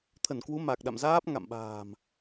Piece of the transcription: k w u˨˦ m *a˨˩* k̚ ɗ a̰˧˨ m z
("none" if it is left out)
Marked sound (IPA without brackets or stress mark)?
a˨˩